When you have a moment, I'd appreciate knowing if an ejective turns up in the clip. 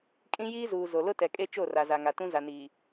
yes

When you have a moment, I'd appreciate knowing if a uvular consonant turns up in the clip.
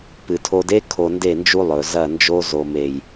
no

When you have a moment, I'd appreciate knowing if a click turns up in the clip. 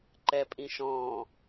yes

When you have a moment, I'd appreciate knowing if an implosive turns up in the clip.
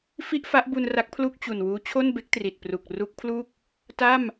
no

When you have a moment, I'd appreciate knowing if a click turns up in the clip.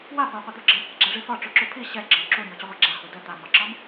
yes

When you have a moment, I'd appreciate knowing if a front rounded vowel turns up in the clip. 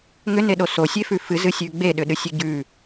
yes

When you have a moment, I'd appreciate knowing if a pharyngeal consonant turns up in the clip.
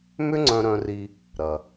no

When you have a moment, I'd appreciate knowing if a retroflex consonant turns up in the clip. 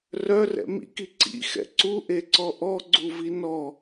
no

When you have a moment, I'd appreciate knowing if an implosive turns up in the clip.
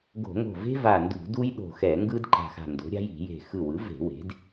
yes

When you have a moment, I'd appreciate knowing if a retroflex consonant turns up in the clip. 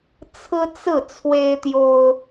no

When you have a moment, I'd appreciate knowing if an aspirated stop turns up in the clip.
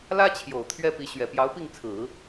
yes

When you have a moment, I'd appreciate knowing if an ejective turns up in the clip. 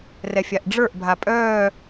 yes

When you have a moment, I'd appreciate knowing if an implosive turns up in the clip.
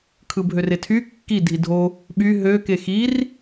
yes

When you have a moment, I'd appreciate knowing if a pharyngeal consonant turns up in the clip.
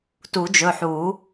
yes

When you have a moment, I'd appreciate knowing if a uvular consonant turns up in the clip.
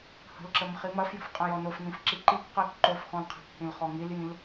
yes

